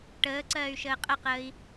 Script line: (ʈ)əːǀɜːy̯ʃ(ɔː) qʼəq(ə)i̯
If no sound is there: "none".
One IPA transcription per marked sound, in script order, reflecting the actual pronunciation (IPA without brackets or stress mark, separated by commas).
ʈ, əː, əː